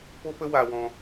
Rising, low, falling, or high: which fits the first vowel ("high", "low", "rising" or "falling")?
high